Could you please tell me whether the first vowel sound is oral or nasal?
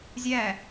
oral